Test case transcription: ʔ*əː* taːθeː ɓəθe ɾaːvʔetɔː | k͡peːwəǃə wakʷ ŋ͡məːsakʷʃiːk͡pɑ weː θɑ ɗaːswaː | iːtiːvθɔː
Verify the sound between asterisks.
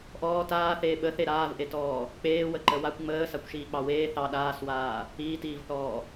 incorrect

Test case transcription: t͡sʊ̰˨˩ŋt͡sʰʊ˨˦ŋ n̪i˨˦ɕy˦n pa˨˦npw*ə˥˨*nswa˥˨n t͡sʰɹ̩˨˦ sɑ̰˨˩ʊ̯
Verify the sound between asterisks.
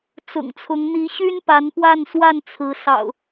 incorrect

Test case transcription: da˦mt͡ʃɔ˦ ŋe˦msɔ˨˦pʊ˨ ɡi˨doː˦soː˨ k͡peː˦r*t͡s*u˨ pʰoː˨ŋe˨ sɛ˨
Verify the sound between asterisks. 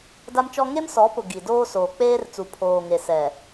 correct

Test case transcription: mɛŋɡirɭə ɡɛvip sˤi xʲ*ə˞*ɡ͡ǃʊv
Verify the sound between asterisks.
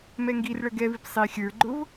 correct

